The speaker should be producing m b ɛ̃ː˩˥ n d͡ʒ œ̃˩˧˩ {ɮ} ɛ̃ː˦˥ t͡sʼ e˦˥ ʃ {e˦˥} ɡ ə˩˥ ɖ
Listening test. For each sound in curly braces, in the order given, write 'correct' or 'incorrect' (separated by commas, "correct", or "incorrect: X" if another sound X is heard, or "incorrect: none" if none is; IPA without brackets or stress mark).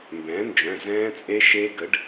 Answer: incorrect: z, correct